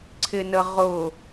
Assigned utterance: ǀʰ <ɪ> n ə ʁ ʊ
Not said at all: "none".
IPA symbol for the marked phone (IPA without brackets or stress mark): ɪ